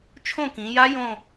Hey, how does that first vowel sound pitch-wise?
falling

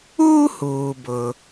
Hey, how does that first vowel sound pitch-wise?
high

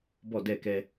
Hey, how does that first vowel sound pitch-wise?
falling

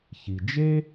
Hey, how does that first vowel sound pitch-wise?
low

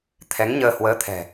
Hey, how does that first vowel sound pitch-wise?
rising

